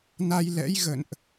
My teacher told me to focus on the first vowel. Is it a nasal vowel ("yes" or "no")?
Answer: no